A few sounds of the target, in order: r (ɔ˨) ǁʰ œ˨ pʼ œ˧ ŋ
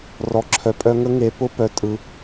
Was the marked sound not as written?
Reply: no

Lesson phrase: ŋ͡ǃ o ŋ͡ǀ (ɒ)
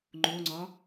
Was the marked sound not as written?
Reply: no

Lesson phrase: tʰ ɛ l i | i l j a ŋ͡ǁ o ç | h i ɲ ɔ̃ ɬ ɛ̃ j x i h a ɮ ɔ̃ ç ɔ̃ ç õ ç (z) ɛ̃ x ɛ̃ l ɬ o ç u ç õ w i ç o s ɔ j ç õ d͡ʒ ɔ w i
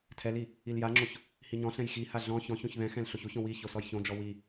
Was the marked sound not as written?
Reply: yes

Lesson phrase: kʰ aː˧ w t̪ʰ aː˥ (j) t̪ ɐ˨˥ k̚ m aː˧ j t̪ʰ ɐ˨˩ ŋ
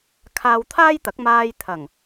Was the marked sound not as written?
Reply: no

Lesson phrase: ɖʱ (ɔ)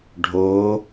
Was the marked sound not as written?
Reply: yes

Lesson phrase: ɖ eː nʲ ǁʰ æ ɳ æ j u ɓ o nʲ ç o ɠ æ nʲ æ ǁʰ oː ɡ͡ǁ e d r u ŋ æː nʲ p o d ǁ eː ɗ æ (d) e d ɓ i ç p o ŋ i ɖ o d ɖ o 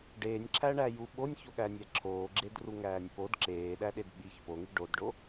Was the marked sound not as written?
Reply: yes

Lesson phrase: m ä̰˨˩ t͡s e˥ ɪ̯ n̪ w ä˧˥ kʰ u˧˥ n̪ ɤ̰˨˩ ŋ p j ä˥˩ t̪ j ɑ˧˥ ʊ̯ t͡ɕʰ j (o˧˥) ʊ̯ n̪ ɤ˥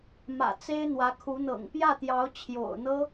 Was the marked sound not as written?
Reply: yes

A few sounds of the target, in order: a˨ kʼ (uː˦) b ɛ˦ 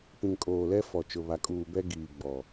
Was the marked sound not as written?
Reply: yes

